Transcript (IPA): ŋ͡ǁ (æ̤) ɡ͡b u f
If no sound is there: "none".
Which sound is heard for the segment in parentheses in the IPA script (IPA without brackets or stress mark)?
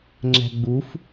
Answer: æ̤